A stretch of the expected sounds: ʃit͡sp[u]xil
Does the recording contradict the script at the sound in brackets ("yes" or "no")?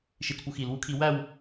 no